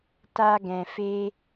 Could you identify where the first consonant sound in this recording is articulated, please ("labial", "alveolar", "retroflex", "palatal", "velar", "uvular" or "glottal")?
alveolar